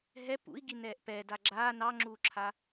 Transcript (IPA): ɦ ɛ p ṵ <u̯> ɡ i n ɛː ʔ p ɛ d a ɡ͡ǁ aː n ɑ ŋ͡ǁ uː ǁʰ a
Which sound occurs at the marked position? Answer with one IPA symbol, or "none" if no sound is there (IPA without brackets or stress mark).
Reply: i̯